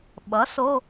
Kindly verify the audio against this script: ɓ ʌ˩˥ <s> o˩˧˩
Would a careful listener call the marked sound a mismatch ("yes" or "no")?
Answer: no